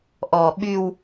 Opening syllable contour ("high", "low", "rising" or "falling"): low